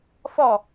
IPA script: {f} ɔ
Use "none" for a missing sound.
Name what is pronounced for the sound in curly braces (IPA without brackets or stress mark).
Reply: f